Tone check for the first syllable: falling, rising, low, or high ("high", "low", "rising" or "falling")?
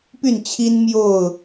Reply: falling